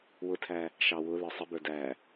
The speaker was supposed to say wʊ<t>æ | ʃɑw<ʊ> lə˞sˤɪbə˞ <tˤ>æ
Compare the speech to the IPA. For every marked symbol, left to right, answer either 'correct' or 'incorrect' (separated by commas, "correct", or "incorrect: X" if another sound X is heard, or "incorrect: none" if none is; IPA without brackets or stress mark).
incorrect: tʰ, correct, incorrect: d